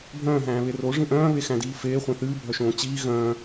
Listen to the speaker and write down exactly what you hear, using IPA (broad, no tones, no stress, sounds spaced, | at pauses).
bʱ œ̃ː ɦ æ̃ː β e r o ʐ ĩ ʔ œ̃ː β e x æ̃ d iː f eː χʷ ẽ θ ɨː bʱ œ ʃ õː t͡ɕ iː ɣ œ̃ː